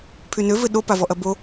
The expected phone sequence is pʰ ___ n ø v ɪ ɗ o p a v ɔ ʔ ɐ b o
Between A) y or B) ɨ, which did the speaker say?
A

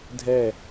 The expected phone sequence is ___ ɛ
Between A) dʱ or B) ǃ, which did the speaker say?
A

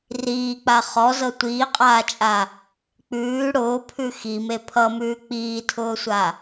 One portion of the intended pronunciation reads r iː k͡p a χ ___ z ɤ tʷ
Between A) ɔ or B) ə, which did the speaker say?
A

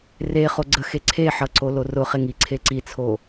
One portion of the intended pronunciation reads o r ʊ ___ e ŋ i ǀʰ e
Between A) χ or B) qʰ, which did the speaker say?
A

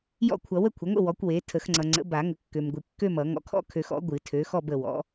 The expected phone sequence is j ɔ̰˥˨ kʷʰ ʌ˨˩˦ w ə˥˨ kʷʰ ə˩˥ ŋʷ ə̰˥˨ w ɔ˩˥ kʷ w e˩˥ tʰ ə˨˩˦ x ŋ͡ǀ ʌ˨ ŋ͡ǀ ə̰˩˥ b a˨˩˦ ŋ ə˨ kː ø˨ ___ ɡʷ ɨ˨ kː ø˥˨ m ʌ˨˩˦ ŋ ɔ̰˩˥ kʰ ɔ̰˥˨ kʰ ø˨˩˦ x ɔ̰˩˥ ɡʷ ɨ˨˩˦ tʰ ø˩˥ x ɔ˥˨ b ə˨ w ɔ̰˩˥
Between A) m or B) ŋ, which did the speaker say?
A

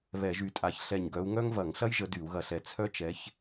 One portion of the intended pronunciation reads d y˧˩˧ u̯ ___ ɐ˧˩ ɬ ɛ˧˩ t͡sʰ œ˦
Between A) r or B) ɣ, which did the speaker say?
B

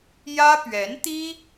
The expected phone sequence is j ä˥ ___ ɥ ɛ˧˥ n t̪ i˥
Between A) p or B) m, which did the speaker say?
A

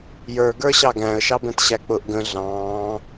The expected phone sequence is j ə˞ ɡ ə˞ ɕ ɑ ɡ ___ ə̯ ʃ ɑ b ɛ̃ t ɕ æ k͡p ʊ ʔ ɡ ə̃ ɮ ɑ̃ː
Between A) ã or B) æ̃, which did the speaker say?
B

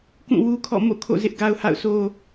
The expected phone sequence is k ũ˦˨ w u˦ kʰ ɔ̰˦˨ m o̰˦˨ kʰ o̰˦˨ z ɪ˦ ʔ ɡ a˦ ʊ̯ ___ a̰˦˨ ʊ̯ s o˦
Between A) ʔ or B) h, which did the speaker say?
B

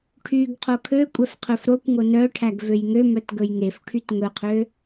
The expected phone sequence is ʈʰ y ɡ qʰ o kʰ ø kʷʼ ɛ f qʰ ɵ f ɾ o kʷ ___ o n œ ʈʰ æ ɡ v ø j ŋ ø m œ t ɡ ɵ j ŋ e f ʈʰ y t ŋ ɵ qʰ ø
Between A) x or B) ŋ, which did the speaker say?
B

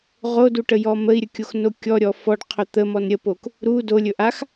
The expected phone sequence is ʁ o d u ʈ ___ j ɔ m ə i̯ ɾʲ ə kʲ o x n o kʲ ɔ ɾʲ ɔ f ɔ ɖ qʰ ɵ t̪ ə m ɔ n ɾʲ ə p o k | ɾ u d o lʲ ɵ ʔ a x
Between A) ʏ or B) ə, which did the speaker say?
B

